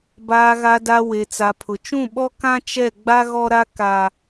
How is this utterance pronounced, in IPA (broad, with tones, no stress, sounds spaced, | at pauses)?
b aː˨ ɣ a˨ d a˨ w e˨ t͡s a˨ pʰ ʊ˨ t͡ʃ ũ˦˨ ɓ ɔ˦ k ã˦ t͡ʃ ɛ˦˨ ɡ͡b a˦ ɣ ɔ˦ ɾ a˦ k a˦